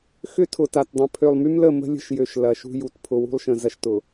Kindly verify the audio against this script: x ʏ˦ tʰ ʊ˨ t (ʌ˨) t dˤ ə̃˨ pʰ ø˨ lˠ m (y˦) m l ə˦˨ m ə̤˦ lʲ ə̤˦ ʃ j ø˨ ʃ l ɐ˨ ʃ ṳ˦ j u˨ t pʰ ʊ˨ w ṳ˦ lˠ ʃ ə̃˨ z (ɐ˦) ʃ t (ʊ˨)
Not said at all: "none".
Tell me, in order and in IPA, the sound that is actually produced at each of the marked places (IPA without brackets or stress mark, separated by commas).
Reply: a˨, y˦, ɐ˦, ʊ˨